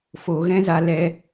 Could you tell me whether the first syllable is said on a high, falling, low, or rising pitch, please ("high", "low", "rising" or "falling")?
low